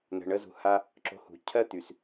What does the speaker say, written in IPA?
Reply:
n̪ə̤˨ɳə˧zṳ˨ ha˧ | ǁo̤˧hṳ˨˦ cʰɜ˦t̪y˨s

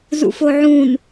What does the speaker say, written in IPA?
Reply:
zṵfoʕũn

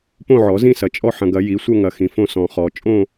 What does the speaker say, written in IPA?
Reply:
põ˥˧ʕɔ˨˩˦zĩ˥˧sɐ˨ t͡ʃʼɔ˥˧ħɐ̃˨ɡɐ˨˩˦ ji˨˩˦sʷɐ˥˧ŋɐ˨ xĩ˨fõ˥˧ sɔ̃˨χɔ˨˩˦ t͡ʃʼõ˥˧

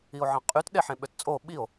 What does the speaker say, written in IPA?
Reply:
io̯ʕɑ̃qʼyt ɗeħẽɓøtt͡sʼo ɓio̯

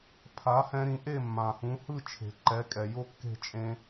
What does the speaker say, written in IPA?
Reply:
pʰa˩˥hɛ̃˧ɾĩ˩˥ ʔe˥˩mːã˩hũ˩˥hɯ˥˩ t͡ʃʰe̤˩ǃɛ˩˥kʼɛ˩ jo˥kːe̤˥˩t͡ʃʼẽ˧

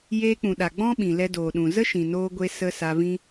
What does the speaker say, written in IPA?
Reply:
jeː˧ k͡pũ˨ɗa˨ ɡ͡bɔ̃˦ ɓĩ˨lɛ˧doː˨ɗũ˨ zə˦ʃĩ˨noː˧ɡʷe˧ sə˧ sa˧vĩ˦

